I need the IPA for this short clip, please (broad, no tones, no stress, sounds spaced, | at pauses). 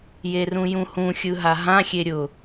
j e r ũ j ũ h ũ xʲ ɯ ɦ a ɦ ã xʲ e ɾʲ ʊ